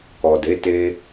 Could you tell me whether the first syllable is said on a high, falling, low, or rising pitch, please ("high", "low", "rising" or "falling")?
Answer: low